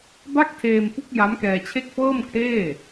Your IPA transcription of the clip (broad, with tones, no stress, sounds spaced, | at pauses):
b a˥˩ k̚ tʰ eː˧ m p u˦˥ k̚ j a˦˥ m k ɛː˧ t͡ɕʰ e˥˩ k̚ f ɤː˥˩ m kʰ eː˥˩